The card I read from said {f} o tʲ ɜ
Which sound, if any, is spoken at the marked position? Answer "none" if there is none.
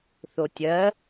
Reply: θ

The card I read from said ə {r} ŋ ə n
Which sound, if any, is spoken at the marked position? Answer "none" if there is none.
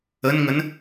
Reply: n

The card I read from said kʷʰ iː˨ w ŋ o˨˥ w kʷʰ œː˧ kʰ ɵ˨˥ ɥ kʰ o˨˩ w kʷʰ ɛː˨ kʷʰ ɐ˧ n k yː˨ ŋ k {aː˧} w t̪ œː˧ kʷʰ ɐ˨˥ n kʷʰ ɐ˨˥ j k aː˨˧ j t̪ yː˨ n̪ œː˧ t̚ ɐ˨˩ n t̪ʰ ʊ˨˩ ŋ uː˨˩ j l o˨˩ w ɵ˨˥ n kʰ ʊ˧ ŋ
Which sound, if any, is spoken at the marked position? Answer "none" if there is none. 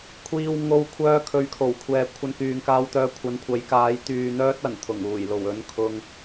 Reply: aː˧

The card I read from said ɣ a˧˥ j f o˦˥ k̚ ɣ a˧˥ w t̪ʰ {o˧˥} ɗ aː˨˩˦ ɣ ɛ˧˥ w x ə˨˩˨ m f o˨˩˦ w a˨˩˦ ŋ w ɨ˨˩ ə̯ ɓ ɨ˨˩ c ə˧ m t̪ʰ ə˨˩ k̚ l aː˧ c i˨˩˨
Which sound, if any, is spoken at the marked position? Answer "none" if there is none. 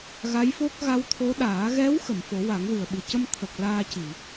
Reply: o˧˥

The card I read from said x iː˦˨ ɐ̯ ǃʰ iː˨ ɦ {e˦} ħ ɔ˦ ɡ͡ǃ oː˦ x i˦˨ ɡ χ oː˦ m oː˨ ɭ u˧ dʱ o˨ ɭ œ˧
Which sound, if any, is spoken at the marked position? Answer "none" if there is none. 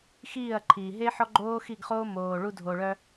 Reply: e˦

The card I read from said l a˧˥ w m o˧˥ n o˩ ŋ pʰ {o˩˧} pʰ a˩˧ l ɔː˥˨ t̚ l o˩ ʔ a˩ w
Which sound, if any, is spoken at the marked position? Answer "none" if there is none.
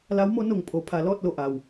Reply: o˩˧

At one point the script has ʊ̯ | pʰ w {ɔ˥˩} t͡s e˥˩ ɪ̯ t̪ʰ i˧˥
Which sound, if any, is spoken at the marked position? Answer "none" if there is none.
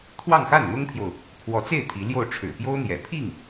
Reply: ɔ˧˥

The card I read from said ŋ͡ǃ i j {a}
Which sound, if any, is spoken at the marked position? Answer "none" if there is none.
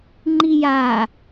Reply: a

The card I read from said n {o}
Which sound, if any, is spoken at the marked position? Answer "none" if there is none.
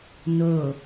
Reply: o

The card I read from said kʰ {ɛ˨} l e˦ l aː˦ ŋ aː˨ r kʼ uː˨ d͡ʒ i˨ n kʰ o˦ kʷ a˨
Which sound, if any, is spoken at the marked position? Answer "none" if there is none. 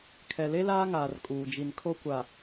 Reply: ɛ˨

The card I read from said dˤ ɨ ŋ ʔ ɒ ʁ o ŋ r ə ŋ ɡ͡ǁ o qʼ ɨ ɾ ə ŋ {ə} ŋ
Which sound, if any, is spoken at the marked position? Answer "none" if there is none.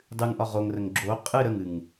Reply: ɨ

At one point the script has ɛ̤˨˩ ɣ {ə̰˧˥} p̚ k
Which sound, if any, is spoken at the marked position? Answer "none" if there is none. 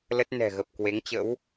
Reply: ə˨˩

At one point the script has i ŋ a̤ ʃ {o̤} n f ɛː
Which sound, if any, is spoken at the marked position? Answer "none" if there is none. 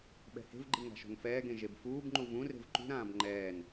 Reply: o̤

